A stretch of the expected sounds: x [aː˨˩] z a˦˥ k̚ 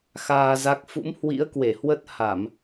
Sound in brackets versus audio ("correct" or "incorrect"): incorrect